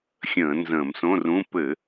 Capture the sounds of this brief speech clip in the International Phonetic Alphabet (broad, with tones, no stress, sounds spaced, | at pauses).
xʲ ə̃ː˧˩˧ n z ə̃ː˧˩˧ m s õ˧˥˧ r ũ˧˥˧ p ɘ˧˩˧